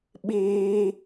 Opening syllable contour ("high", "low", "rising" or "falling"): high